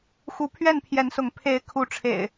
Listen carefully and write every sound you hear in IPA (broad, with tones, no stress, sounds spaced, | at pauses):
x u˨˦ pʰ ɥ ɛ˥˨ n pʰ j ɛ˨˦ n s ʊ˨˦ ŋ pʰ e˨˦ ɪ̯ kʰ u˨˦ ʈ͡ʂʰ ḛ˨˩ ɪ̯